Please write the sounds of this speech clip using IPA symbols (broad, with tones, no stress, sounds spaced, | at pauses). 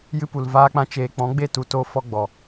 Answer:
j ɨ˦ p u˨ l v aː˦ k͡p ã˦ t͡ʃ eː˧ k͡p ɔ̃˨˦ ɡ͡b e˦˨ t u˧ t o˧ f ɔ˧ ɡ͡b ɔ˨